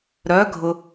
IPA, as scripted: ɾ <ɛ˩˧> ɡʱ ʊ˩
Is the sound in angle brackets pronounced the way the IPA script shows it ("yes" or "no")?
no